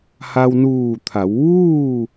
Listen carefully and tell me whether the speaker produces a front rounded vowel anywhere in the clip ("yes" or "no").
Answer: no